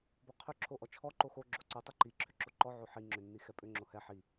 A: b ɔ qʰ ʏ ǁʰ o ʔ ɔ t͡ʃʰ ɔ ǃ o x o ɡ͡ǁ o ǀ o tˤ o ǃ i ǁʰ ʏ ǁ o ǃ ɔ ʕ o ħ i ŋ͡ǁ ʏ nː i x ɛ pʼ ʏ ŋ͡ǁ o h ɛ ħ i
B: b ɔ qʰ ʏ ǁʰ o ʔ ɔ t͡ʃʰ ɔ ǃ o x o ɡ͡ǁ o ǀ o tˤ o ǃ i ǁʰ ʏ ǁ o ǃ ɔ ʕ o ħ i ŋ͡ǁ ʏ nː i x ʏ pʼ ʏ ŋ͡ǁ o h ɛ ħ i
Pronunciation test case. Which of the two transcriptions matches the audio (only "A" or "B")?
A